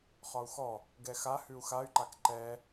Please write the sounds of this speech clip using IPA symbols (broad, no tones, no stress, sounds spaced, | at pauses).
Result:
χ ɒ u̯ x ɔ | ɡ ɛ x a h ʉ u̯ x a y̯ ǃ a k ǃ ɛ